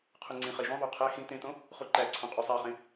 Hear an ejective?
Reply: yes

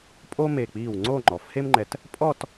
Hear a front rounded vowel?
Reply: no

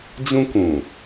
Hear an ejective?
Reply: no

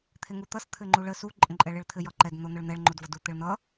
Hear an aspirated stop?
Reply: yes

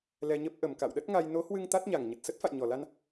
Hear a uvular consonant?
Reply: no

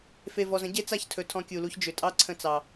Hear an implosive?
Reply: no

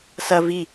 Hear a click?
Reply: no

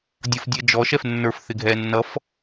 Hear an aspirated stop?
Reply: no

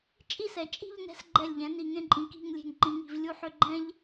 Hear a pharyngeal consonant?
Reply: yes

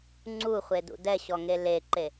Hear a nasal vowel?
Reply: no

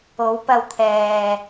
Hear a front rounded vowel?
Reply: no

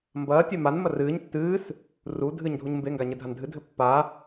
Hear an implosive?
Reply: no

